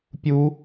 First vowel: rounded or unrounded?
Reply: rounded